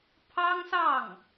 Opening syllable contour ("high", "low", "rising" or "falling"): high